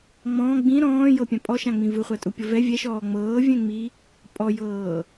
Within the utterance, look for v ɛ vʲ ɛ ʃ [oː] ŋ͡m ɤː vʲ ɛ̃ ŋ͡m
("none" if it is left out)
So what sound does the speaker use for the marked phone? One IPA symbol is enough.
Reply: ɔː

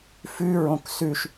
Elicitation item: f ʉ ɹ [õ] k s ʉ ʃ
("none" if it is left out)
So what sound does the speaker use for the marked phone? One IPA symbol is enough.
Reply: õ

